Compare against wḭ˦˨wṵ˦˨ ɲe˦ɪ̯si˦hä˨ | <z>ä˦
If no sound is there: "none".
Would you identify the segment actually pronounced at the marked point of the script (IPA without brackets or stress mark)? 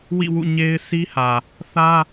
θ